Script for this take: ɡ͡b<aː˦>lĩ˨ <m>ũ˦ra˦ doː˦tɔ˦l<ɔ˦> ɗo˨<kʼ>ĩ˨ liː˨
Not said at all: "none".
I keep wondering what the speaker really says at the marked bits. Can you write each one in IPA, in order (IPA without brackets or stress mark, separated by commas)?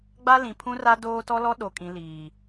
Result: a˦, pʰ, ɔ˦, kʼ